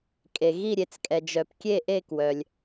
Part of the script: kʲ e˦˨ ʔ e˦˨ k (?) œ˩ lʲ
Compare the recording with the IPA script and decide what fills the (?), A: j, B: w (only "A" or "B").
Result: B